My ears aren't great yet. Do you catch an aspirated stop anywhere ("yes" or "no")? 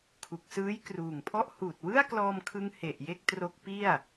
yes